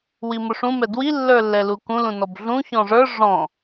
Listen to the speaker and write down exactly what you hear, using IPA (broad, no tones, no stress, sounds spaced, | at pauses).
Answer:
w i m ʊ ʂ ũ m ɛ d w i lː ə˞ lː ɛ l u k ũ l ũ n ɔ b ɮ ũ ç ɔ̃ ʐ ə˞ ʐ ɔ̃